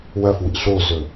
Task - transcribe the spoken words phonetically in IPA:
w ɐ f w ḭ ɬ o z ɵ

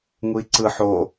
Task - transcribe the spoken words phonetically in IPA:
ŋ u i̯ ǀ ɯ ħ o

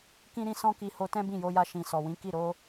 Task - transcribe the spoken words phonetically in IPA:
k ĩ˦ ɾ ĩ˦ s ɔ̃˦ k i˧ h o˧ t ɛ̃˦ b ĩ˦˨ j o˧ j a˧ ʃ ĩ˨ s ɔ˨ w ĩ˨˦ k i˦˨ ɾ o˧

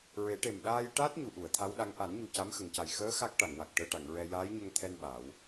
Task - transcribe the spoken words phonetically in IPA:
ɹ e˨˩˦ ʈ e˨˩ m ɗ aː˧ j ʈ aː˦˥ t̚ ɲ u˨˩ ʔ u˨˩˨ ə̯ t̪ʰ a˧˥ w ɗ a˧˥ ŋ ʔ a˨˩˦ n ɲ u˨˩ c a˧˥ m x ə˨˩ ŋ c a˨˩ j x əː˧˥ x a˦˥ k̚ ʈ a˨˩˨ ŋ w a˨˩ k̚ ʈ əː˧ ʈ a˨˩˨ ŋ ɹ ɛ˧ j aː˧˥ j ɲ ə˧ ŋ t̪ʰ ɛ˧ n ɓ a˨˩˦ w

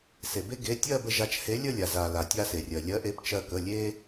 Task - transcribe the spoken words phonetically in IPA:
s e˩ b e˧ ɡ e˩˧˩ tʲ ɜ˥˧ b ə˧ ʒ a˨˥ t͡ʃ h e˨˥ lʲ ə˥˧ lʲ a˩ z a˩ l a˩ tʲ a˧ s e˩ rʲ ɜ˩ lʲ ɜ˨˥ ʔ e˨˥ p t͡ʃ ɜ˧ k ə˩˧˩ lʲ e˧

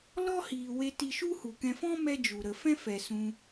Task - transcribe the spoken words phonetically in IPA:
l ɔ˦ h iː˨ w e˧ t i˧ ʃ u˦ h u˨ k ɛ̃˧ f ɔ̃˦ m ɛ˦ d͡ʒ u˨ ɾ ə˨ f ɛ̃˦ f ɛ˨ s ũ˧

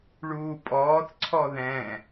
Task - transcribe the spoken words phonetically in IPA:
ɭ uː pʼ ɔː θ ǀʰ ɔ ð ɛ̃

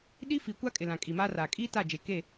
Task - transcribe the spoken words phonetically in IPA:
ɗ i˦ f i˨ kʷ a˦ kʼ ɪ˨ l ã˨ kʼ i˨ m aː˦ r aː˨ kʼ iː˦ t a˦˨ d͡ʒ e˨ k e˦˨

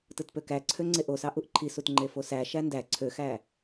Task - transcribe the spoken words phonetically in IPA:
t ɯ t p ø k æ ǀʰ ø ŋ͡ǀ e ʔ o s ɑ ʔ u ʔ ǃʰ i s u t ŋ͡ǃ e f o s æ ʃ æ n d æ ǀʰ ø x æ

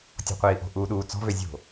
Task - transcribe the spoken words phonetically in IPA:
tʲ ɔ̤ qʷ iː ʔ o̤ ʔ uː ɗ uː t͡s ɔ̤ v ø zʲ o̤

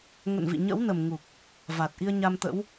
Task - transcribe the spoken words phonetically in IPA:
ŋ ə̰˧˨ n v ḭ˧˨ ɲ ə̰˧˥ w n ə˨˩ m ŋ u˨˩ k̚ | v a˨˩ t̚ ʔ i˧ ə̯ ɲ a˧ m t̪ ə̰˧˥ w

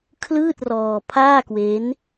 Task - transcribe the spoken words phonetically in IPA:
kʰ l ɯː˥˩ t̚ r ɔː˧ pʰ aː˥˩ k w e˦˥ n

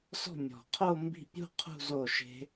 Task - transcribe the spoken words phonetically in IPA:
s ɔ̤˥˩ mʲ ɔ̤˨˩ qʰ o˥˧ m b i̤˥˩ pʲ ṳ˥˧ qʰ ṳ˥˧ z o˥˩ ʃ e̤˦˥

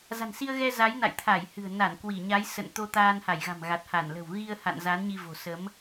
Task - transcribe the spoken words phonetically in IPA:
z a̤˨˩ n s i˧ ə̯ ɣ ɛ˧ z a˨˦ j n a̰˧˨ j t̪ʰ a˧˩ j h ɨ̤˨˩ ə̯ n a˧˩ n k w i˧˩ ɲ a˨˦ j s ə̰˧˨ n t̪ o˧ t̪ aː˧ n h a˧˩ j ɣ a̤˨˩ m ɣ a˨˩ t̚ h a˧˩ n l ə̤˨˩ w ɣ i˧ ə̯ h a̰˧˨ n z a˨˦ n ɲ i˧ v o̤˨˩ s ə˨˦ m

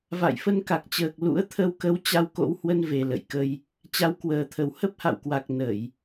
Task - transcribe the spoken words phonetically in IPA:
v a̰˧˨ j f ə˧ n k a˨˩ k̚ t͡ɕ əː˨˩ k̚ l ṵ˧˥ ə̯ t̪ʰ ə˧ w k ə˧ w t͡ɕ a˧ w k o̰˧˥ w h w ə˧ n v e˨˩ l ə̰˧˨ j k ə˧ j | t͡ɕ a˨˦ w k w əː˨˩ t̪ʰ ə˨˩ w h ə˦˥ p̚ h a̰˧˨ w k w a˨˩ k̚ n ə˧˩˨ j

